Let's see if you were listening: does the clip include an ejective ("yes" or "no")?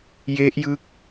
no